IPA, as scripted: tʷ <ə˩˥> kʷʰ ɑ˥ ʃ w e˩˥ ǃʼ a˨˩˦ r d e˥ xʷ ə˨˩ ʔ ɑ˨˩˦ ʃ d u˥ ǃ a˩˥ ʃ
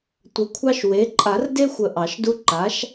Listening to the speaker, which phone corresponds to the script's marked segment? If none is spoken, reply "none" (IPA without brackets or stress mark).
ə˩˥